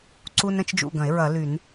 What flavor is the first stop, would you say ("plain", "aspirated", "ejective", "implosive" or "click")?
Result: click